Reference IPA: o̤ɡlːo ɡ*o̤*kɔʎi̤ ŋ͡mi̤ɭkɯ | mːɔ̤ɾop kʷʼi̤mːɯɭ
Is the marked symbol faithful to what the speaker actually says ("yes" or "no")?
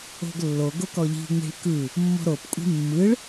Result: no